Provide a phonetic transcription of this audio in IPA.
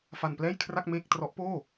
fa˧nplɛː˥˩jkʰra˥˩k̚ meː˥˩k̚ trɔ˦˥ʔpoː˥˩

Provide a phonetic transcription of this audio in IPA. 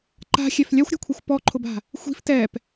ǃa̤xʲɛf lʲaxʷɾʲa̤kʷʰixʷ pɔǃʰʊba̤ | xʷi̤f tɛp

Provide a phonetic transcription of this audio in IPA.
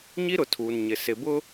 ɲi˦ɾʊ˨tʰuː˨nɲɪ˨ sɪ˨bʊ˦

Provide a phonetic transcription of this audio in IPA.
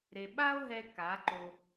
ɾe˨ɓa˦o̯ɦɛ˧ ka˨˦ǃo˧

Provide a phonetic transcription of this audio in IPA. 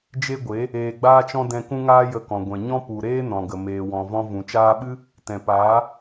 d͡ʒe˦ɡʷe˨˦ | eː˧ɡ͡baː˦t͡ʃɔ̃˦ dɛ̃˧ kũ˦ŋaː˦ jə˧kɔ̃˨ ɡʷɛ̃˨ ɲɔ̃˦pu˨ɾeː˦ nɔ̃˨ɡə˨ meː˨wɔ̃˨vɔ̃˧ vũ˨ t͡ʃaː˧ɓɨ˦ | tɛ̃˨paː˨˦

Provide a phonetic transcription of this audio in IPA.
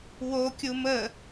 wokʲu mə

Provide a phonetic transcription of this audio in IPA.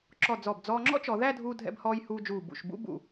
ǁɔ˧˩d͡zɔ˧˩b d͡zɔː˧ŋ͡ǁɔ̰˥t͡ʃɔ˩˧ ðæ˥˧dʱuː˧dʱɛ̰˧bhɔː˧j huː˧d͡ʒuː˧˩ bṵ˧˩ʃ bṵ˥bṵ˧˩

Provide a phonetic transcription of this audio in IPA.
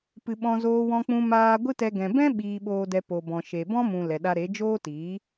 pɨ˨ ɓɔ̃˧zoː˧ wɔ̃˧k͡pũ˧ maː˧ ɡʷɨ˦tɛ˧ ɡɛ̃˨ bɛ̃˦ ɓiː˧ɓoː˧dɛ˧ po˨bɔ̃˨ ʃe˨bɔ̃˦mũ˨ lɛ˨ɗa˧ɾe˨˦ d͡ʒoː˦tiː˨˦

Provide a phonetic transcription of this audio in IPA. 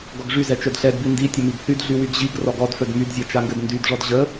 ɡɔɡʐy zɛt͡ʃœdɬɛdbi ndi tʲəmiɡθydɮy wyɡʑiɡ rɔɡɔdfœd mydzʲat͡ʃaŋɡɘd ndydʐɔd ʑə

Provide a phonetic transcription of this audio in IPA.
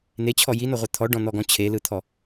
net͡ɕʰɔ jinɔʁʷɛ t̪ʰɔɖɔ̃n̪ɔɡɔ̃ t͡ɕʰelɯt̪ʰɔ

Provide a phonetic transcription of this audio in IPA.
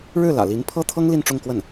ɻɻ̩˥˩ lä̰˨˩li˧˥n pʰɤ˥t̪ʰɤ˥ŋ li˥˧nʈ͡ʂʊ˥˧ŋkwə˥˩n

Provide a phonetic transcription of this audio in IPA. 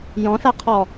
jɔ̃ɬaqʰɔ

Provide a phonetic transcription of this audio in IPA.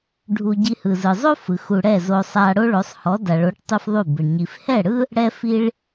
ɖʱu˧ɟi˧hɯ˨zɯ˨ zˤo˦fɯ˨x u˨ ɽɛ˦˨zo˧ sˤa˧ɽo˦ ɭo˨˦sˤhɔ˨˦da˨ɭo˨˦ʈ tˤu˦fðˤu˦˨bɯ˨ɳ ɲi˨f hɛ˦˨ɽɯ˦ | ɽɛ˦ fi˦ɭ

